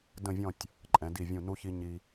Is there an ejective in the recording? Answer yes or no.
yes